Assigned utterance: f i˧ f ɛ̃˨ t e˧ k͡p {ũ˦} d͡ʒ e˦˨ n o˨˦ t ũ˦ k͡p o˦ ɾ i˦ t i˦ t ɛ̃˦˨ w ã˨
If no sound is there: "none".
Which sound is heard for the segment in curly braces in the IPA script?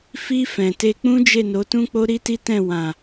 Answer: ũ˦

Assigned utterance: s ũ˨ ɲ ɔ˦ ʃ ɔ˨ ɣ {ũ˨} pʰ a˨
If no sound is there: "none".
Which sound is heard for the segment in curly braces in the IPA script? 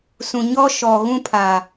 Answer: ũ˦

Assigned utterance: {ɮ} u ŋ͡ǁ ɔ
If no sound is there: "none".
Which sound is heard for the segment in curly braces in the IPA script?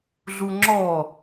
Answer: ɮ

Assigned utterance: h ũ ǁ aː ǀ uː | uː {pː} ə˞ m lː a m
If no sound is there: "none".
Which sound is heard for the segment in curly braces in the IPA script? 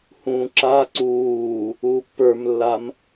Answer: pː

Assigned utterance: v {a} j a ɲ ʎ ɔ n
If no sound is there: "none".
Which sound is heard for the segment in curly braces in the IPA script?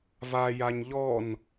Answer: a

